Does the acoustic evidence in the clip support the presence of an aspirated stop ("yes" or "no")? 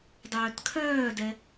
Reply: yes